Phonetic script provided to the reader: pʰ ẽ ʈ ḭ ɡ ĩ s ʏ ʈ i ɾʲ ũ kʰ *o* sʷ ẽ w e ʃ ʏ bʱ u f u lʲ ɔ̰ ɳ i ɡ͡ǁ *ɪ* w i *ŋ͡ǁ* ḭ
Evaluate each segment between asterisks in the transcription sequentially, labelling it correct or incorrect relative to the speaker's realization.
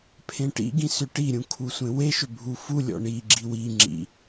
incorrect: u, incorrect: i, correct

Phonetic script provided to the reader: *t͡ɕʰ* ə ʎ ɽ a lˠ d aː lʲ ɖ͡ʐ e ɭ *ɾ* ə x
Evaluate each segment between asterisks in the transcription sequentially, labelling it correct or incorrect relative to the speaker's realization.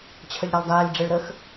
correct, correct

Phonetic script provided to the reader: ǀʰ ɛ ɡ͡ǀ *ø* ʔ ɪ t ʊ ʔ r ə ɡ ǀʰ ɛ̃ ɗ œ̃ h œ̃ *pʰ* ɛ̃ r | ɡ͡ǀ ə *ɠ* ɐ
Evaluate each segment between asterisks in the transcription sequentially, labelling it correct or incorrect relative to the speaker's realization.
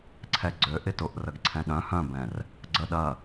correct, incorrect: b, incorrect: ɗ

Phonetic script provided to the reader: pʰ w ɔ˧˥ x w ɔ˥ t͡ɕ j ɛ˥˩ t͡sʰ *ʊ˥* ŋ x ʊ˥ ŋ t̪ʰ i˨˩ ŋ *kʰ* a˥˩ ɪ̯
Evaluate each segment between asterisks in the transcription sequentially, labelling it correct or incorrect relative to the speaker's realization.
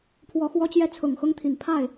incorrect: ʊ˨˩, incorrect: pʰ

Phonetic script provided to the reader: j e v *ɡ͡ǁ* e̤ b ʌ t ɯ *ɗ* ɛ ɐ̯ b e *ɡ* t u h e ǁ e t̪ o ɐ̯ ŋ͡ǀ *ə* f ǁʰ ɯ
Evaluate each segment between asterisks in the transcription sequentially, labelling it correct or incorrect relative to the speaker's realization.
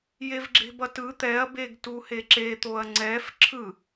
correct, incorrect: t̪, correct, incorrect: ɛ

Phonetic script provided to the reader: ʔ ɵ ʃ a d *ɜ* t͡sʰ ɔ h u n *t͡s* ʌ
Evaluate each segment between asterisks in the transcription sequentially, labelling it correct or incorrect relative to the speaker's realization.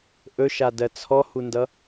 correct, incorrect: d

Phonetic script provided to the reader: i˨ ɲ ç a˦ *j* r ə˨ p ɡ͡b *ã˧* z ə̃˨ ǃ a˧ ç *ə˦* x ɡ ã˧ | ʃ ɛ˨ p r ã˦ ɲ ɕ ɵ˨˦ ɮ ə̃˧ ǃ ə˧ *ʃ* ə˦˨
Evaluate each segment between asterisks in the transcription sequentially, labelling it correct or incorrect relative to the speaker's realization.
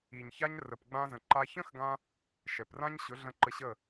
incorrect: ɲ, correct, incorrect: ə̃˦, incorrect: ɕ

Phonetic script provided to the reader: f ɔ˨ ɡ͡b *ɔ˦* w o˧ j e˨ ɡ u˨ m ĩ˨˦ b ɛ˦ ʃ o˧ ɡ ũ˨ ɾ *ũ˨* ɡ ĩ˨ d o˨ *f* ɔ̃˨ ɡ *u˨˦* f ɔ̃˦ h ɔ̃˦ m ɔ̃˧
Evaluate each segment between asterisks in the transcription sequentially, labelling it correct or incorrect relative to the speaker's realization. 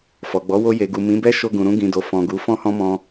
incorrect: ɔ˨˦, incorrect: ũ˧, correct, correct

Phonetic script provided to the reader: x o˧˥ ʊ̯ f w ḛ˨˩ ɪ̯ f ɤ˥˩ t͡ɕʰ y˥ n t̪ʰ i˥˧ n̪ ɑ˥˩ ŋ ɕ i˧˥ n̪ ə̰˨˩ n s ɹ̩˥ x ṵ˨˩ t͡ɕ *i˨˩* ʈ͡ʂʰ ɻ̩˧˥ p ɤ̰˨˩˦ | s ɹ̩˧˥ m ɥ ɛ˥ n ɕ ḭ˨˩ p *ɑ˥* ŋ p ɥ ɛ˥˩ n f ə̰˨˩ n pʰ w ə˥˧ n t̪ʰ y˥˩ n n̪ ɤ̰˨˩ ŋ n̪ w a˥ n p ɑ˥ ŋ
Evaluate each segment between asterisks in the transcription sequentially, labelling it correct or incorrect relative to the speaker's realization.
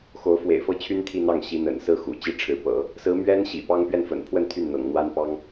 incorrect: i˥, correct

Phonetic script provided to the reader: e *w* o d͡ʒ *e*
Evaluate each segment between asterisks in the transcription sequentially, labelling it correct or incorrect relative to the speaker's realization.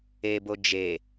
incorrect: b, correct

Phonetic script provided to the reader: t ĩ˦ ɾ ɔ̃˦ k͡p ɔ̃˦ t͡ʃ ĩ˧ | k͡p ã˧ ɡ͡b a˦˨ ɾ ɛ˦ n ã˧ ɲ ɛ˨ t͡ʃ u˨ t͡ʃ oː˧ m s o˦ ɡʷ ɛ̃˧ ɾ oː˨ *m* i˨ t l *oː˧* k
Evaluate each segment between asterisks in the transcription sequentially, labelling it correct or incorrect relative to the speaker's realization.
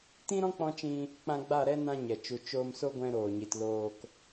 incorrect: ɲ, correct

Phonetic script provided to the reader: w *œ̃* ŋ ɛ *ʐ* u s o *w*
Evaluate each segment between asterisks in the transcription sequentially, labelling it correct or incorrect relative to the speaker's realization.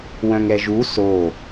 correct, incorrect: ʒ, incorrect: none

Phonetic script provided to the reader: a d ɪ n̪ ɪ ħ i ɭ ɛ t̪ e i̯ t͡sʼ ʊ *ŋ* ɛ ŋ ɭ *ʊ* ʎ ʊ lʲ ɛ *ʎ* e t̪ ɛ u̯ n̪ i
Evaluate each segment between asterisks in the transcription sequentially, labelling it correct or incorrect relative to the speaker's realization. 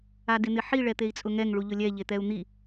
correct, incorrect: u, correct

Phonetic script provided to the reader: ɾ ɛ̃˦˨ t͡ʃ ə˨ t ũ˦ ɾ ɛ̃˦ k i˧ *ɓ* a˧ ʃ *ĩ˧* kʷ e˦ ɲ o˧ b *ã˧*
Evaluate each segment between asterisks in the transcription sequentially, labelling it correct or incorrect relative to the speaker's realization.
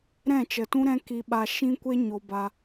correct, incorrect: ĩ˦, incorrect: a˧

